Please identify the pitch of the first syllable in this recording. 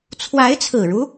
rising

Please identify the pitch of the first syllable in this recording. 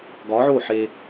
rising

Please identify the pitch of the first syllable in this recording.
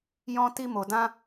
high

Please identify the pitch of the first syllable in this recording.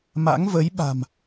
rising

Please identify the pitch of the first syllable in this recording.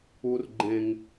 high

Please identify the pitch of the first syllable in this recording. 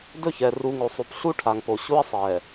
falling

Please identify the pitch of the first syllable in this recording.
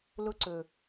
high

